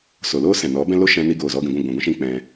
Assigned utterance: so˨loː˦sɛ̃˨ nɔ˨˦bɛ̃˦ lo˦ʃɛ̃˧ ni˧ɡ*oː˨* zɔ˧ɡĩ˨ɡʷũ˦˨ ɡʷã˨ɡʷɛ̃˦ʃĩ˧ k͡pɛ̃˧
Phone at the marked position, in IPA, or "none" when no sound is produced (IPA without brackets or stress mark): oː˨